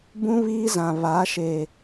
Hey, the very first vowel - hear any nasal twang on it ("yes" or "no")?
yes